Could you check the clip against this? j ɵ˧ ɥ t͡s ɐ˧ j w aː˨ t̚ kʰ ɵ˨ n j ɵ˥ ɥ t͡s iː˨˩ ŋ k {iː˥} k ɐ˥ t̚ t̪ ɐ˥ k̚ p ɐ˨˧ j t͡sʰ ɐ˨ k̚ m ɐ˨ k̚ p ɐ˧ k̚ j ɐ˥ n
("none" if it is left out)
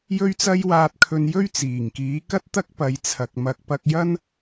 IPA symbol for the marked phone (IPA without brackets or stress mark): iː˨˥